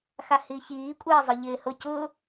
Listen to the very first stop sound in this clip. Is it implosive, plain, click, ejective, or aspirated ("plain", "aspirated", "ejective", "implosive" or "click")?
ejective